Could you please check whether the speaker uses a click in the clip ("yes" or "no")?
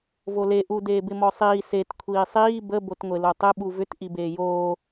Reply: no